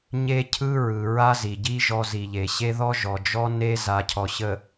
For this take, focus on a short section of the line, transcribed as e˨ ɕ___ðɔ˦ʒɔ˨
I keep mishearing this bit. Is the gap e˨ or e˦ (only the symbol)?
e˦